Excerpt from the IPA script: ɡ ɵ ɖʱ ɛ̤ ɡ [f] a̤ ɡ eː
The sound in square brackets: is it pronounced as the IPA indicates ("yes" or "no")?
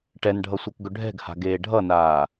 no